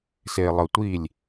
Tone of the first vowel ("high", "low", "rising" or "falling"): low